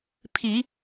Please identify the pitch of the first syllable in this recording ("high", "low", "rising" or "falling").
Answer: low